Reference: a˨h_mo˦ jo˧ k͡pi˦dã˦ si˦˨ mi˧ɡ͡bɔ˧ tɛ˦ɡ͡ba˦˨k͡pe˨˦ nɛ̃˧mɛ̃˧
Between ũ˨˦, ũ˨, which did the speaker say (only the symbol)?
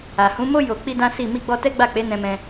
ũ˨˦